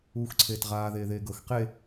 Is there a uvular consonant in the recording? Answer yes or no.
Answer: yes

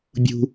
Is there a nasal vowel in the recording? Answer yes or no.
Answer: no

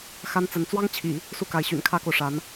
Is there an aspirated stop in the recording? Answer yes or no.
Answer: yes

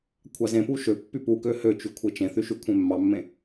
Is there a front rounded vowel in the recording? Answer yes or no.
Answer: yes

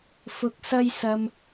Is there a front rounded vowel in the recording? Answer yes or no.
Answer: no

